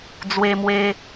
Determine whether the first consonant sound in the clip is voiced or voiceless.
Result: voiced